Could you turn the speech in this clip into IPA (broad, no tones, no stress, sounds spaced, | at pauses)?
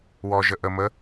w ɔ ʒ ə ʔ ə m ə